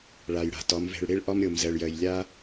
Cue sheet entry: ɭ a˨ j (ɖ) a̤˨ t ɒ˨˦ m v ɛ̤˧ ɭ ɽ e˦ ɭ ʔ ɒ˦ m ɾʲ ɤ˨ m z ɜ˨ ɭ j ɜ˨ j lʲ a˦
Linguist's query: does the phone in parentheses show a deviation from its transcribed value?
yes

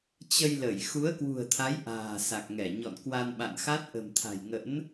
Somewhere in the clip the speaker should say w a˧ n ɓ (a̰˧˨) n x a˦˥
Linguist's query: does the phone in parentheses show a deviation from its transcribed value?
no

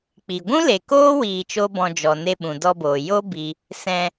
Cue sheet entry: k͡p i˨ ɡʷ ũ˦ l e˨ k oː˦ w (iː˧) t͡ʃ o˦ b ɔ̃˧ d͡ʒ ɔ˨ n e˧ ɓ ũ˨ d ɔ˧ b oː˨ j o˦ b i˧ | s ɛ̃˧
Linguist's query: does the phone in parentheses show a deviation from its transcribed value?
no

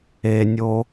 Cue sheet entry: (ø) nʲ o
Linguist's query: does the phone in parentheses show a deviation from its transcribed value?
yes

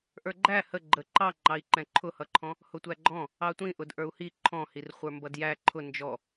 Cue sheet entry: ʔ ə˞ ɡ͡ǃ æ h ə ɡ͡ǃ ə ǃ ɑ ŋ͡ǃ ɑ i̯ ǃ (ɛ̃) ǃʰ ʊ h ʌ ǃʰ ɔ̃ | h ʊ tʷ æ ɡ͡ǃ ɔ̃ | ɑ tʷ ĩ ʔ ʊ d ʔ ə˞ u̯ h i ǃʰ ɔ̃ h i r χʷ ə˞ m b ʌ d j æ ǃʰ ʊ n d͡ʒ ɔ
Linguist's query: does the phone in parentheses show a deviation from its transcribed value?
no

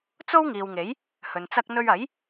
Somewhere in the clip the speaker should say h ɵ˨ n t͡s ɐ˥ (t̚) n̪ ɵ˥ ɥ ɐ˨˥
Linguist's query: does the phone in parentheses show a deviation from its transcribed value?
yes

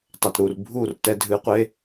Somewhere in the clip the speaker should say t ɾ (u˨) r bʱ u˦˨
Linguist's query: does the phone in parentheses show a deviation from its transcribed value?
no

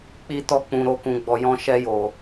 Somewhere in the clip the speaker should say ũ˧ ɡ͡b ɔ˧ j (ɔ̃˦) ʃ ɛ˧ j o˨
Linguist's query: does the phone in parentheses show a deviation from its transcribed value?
yes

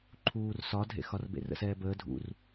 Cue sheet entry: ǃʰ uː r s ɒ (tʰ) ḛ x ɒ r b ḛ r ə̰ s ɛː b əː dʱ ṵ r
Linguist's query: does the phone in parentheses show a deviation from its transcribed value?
yes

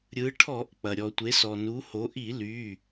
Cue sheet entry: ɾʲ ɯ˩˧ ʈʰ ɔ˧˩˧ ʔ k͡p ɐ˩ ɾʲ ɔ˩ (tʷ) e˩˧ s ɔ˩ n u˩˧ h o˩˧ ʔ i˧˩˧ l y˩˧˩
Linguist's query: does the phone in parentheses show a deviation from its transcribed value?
no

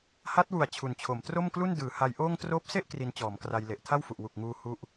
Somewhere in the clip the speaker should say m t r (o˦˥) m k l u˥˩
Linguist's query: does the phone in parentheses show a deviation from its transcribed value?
yes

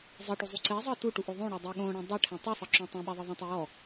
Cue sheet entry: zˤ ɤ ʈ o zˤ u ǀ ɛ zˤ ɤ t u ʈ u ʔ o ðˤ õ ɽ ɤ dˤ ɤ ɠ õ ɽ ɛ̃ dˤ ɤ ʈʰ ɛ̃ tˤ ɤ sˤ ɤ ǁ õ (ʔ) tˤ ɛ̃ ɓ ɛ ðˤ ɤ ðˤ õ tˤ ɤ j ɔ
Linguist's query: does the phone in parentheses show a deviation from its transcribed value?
yes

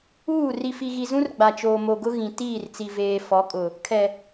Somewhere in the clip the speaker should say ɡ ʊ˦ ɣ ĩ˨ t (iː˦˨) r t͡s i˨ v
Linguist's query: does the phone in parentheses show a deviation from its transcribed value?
no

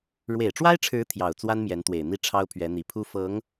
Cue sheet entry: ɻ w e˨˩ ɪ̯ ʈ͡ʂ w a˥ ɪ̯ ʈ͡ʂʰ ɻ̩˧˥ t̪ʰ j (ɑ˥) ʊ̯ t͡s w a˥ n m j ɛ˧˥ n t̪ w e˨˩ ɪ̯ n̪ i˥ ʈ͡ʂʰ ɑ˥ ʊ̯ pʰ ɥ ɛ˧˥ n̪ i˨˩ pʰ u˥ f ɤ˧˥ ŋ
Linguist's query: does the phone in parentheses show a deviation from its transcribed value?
yes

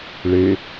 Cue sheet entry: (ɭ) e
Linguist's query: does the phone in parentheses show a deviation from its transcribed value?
no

